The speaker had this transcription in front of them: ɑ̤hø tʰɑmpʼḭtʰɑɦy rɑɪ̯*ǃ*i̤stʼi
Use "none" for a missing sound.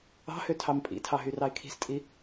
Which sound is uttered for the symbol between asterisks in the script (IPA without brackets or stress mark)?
kʰ